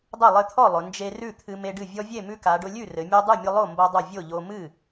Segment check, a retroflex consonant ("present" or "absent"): present